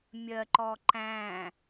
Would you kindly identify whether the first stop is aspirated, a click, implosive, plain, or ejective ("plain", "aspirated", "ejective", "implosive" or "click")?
click